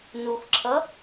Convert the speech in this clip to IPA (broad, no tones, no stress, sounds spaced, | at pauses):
n u xʷ ǁʰ ʌ